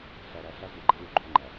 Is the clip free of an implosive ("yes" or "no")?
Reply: yes